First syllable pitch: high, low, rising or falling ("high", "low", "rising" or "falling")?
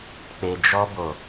low